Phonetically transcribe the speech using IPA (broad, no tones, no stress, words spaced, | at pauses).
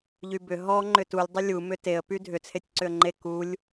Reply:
ʎybʏ ɦɔ ŋ͡ǃʏtulʲ dˤʏlʲu mʏteə̯ pydʱʏ t͡sʰetʲǀʏə̯ŋ͡ǃe kulʲ